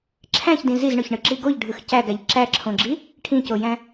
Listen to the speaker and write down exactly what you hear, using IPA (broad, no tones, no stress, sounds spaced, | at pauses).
ǁʰ æ̃ ç d ĩ z i z ɳ ø ç ɳ ɯ ǁ i ɡ o ʎ ɖʱ ɯ x c æ ɡ æ ʎ ǁ æ ǁʰ õ ɡ͡ǁ i | ʈʰ ĩ c o j æ̃